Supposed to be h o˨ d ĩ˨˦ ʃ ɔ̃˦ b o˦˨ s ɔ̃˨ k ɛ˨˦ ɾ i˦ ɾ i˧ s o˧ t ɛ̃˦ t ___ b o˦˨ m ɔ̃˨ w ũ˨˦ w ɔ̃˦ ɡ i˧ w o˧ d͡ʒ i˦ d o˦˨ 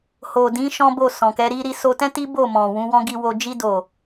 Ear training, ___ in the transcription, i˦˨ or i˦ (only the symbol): i˦